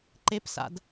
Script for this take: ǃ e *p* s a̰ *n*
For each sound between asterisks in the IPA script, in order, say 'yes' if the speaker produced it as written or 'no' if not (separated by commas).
yes, no